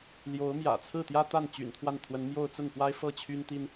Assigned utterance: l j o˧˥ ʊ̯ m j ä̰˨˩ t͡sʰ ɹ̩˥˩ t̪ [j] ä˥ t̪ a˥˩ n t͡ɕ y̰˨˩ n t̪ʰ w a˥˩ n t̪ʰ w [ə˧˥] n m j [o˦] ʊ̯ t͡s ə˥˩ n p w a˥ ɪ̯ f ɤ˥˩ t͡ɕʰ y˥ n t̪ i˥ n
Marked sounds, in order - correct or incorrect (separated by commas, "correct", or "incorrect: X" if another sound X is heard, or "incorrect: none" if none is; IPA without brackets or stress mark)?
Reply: correct, correct, incorrect: o˥˧